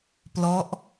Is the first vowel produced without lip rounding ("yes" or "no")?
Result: no